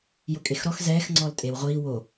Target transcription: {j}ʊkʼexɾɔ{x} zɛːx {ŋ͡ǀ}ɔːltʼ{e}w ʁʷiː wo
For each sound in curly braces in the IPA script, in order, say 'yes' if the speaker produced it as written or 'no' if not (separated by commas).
yes, yes, yes, yes